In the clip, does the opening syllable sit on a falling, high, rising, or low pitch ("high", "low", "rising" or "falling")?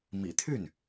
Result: low